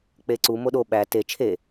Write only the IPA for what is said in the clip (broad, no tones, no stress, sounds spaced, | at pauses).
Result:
k͡p e ǀ u m o ɗ o ɓ æ t e t͡ʃʰ e